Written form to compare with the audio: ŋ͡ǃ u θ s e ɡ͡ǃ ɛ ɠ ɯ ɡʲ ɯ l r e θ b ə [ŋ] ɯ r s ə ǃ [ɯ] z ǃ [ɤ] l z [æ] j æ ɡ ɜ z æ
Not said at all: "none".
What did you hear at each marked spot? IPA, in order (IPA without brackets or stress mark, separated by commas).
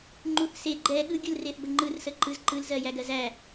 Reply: ŋ͡ǃ, ɯ, ɯ, ɜ